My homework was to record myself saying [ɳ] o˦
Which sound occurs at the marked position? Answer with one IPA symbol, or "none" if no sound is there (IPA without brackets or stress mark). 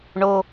ɳ